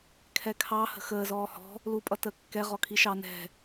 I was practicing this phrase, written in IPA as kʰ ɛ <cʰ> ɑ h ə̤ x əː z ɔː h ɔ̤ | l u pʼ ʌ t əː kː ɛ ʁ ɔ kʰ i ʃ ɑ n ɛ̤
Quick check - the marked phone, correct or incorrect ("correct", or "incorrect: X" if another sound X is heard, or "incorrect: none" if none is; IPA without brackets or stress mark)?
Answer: incorrect: kʰ